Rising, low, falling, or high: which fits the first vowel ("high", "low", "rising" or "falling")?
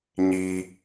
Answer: low